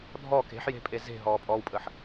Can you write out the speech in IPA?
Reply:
dʱɔ ke̤ħje̤pʼe ze̤ɦɔːpʼɔːwpʼəħ

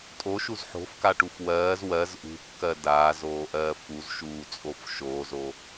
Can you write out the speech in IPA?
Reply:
tʼoʃuz ħo̤fkaʈuf wɜːz wɜz ʔṳkːɜ daːzoːʔɜː fuzʃuːt͡sʼof ʃoːzo

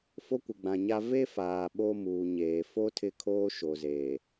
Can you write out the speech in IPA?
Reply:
fo˦kʷɪ˨ɡ͡bã˨ɲa˦ ve˦faː˨ ɓo˦muː˨ɲeː˨ fo˦ tʰɪ˦kʰoː˦ʃo˨zeː˨

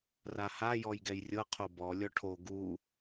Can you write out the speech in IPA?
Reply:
raha jɔjɡɛjrʲɤ qʰobɔ lʲɔʈʰo ɡu

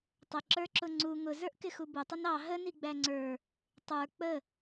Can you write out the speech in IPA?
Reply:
tˤəǁə˞ǁʊ ŋ͡ǀu ŋʊzə˞ʔkɪxu bʊtˤʊn ɑ ɦəniɡ͡bæ ŋ͡ǀə˞ | tˤə˞ k͡pə

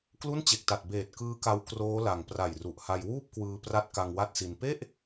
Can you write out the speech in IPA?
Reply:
klu˥˩nt͡ɕe˨˩k̚ta˨˩t̚ beː˨˩t̚kɯː˦˥ka˧w kroː˦˥la˨˩ŋ pra˨˩jru˨˩ʔha˧j wuː˥˩p̚kwɯː˧pra˦˥t̚ka˧ŋ wa˥˩t̚si˧n pe˥˩ʔ

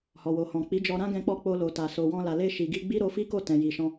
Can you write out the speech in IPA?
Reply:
hɔ˨wo˨hɔ̃˨ k͡pi˨˦d͡ʒɔ˧ ɾã˦ɡɛ̃˧k͡pɔ˧ k͡po˧lo˨ta˨ so˨wɔ̃˧la˨ le˧ʃi˨ɡi˧ ɡ͡bi˦ɾo˧fi˦ko˦˨ tɛ̃˨ji˨ʃɔ̃˧

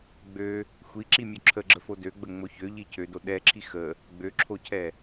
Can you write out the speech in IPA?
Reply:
ɡ͡bø | xʷiǁimʲo ǁʰəɡ͡ǁəfo døɡ͡bəŋ͡mo çøʎi cʰødo ɗɛǁʰi xə | ɡ͡bøǁʰocʰɛ

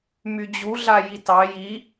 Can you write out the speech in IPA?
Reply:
myd͡ʑuɮa jitɑ ji

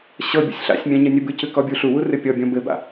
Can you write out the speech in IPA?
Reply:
ɕɤ bʲɔ̰sʲɬa̰sʲmʲã ɲɘnʲɘbɨcɨ kɔbʲuɬuwu rɨpʲɔbʲɔ̃ bɘba̰

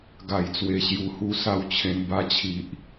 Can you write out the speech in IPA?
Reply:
ɡa˨˩jt͡swe˨˩ɕju˨˩hu˧ sa˥˧wt͡ɕʰẽ˧n ba˧t͡ɕʰi˨ʔ

